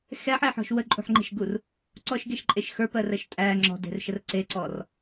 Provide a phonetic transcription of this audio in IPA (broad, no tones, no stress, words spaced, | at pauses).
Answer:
xɛħeħɔ̤ʃ wəǃʼṳħŋ͡ǃe̤ʃɡur | ǀɔʃɡeʃǃʼeʃ xə˞pɜrɜʃ tʼæ ŋ͡ǁɔ̤de̤rʃər ǀeǀɔr